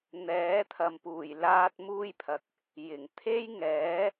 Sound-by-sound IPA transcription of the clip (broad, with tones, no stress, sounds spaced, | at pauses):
n̪ ɛː˨˥ t̪ʰ ɐ˨ m p uː˨˩ j l aː˧ t̚ m uː˧ j pʰ ɐ˨ k̚ | j ɪ˨˩ ŋ t̪ʰ e˥ j ŋ ɛː˨˥